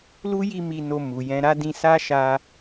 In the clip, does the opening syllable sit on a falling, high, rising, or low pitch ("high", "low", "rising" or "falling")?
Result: high